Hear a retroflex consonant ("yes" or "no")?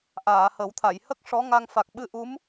yes